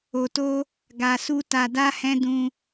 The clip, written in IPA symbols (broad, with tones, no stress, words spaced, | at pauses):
o˨to˧ | ɡa˨su˧ ta˧da˦hɛ̃˦ dũ˧